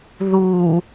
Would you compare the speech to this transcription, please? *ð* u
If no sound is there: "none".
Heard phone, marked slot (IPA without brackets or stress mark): ð